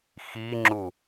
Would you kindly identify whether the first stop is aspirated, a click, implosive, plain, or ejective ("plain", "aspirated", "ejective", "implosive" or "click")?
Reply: click